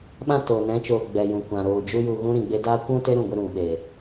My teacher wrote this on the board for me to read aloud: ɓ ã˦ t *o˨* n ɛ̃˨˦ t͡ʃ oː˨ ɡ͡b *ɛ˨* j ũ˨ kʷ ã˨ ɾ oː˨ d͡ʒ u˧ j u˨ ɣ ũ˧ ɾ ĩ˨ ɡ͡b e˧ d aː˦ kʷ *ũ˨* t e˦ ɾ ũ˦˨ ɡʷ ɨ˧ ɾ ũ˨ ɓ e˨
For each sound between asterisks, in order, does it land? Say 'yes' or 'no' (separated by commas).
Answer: no, yes, no